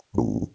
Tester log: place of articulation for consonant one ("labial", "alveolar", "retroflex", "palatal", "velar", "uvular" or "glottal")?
retroflex